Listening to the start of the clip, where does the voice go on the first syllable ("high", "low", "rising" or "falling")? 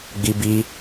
high